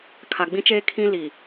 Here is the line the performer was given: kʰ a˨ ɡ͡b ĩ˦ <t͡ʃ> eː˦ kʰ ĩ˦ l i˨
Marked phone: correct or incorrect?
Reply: correct